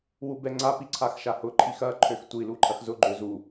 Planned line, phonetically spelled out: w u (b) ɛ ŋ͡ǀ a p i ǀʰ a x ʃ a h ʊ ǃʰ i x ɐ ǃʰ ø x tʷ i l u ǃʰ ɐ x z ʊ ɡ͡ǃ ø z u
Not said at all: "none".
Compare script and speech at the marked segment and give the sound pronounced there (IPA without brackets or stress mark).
b